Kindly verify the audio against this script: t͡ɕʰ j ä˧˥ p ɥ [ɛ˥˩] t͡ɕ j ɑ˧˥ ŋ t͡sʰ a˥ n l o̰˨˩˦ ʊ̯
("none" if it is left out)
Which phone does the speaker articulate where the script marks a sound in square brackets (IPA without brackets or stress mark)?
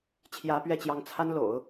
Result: ɛ˥˩